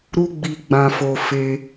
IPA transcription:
ɾ u˧ ɡ͡b i˨ ɡ͡b ã˨ f o˨ f e˧

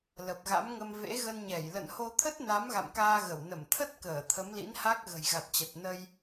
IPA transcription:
l ə˨˩ p̚ ɣ a̰˧˥ m ŋ ə˧ m v ḛ˧˥ ɣ ə˧ n ɲ ɛ˧˩ j l ə̰˧˨ n h o˧ t̪ʰ ə˦˥ t̚ n a˨˦ m ɣ a̰˧˨ m k aː˧ ɣ ə˧˩ w n ə˧˩ m t̪ʰ ə˦˥ t̚ k əː˧˩ t̪ʰ ə˨˦ m l ḭ˧˥ n h a˦˥ k̚ ɣ ə̤˨˩ j ɣ a˨˩ t̚ t͡ɕ ə˨˩ t̚ n ə˧ j

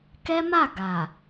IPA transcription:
k ɛ˦ m a˦˨ ɡ a˨

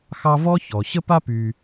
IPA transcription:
x ɑ˦ v ɔ˥ ç ɔ˩ ɕ ə˥ p a˥ p y˨

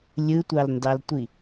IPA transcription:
lʲ ɯ tʷ ɑ l n d ɑ l tʷ i

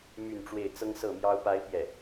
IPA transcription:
m y˥˧ n ʈ͡ʂ w e˥˩ ɪ̯ t͡s ɤ˥ ŋ s ɤ˥˩ m j ɑ˥ ʊ̯ p a˥ ɪ̯ p j ɛ˥˩

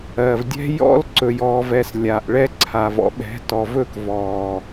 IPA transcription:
ɜ˨ v dʲ ɛ̤˦ j ɔ̰˦ l ǀ ɵ˨ j ɔː˨ v ɛ˨ s lʲ aː˨ ʔ ɭ ɛ˦ ǀʰ a˨ v ɔ̰˨ ɓ ɛ̤˨˦ t ɔ˨ v ɵ˦˨ k v ɔː˨

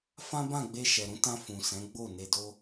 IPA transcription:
f ã˦ b ã˦˨ ɡ͡b e˧ ʃ ɛ˨ ɾ ũ˨˦ t ã˧ f ũ˨ s ɛ̃˨˦ ɡ͡b o˦˨ n e˧ d o˦

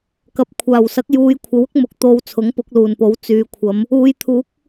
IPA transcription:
k ɐ˨ p̚ kʷʰ aː˨˩ w s ɐ˨˥ k̚ j uː˨˧ j kʷʰ ɐ˨˥ w ʊ˥ k̚ m ʊ˨ k̚ t̪ o˨ w t͡sʰ ʊ˨˥ ŋ p ʊ˨˥ k̚ l uː˨˩ n p o˨˥ w t͡s yː˨˧ kʷʰ ɐ˨˧ m | uː˨˧ j t̪ʰ uː˨˥ k̚

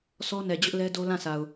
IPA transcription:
s ɔ˦ n ɛ˨ d͡ʑ ʊ˦ ʔ l ɛ˦ d o˦ l ã˦˨ sʰ a˨ ʊ̯

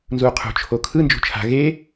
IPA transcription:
n z u qʰ ṳ t͡ʃʰ o kʰ ɯ n d͡ʒ ṳ t͡ʃʰ a̤ ɣ e

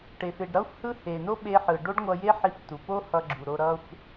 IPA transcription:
ʈ e˩ f e˩ ɖ ɾ ʌ˥ xʷ h ɯ˥ h e˩ n o˥ ɓ e˧ ħ ɯ˩ ɖ o˥ ɖ ŋʷ ʌ˧ j e˥ ħ i˧ f t u˩ p o˥ h ʌ˧ ɡ͡ǁ u˩ ɾ o˧ ɾ ʌ˧ xʷ

